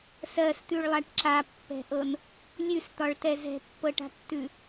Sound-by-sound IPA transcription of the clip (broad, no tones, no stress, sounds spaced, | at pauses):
s ɜ s t̪ ʉ ɭ lˠ a ʈ ǁ a pː ɛ̤ ʔ ɤ n | lʲ ʉ s t̪ ɒ ɭ t ɛ z ɛ̤ pː ɤ ʈ a̤ tː ʉ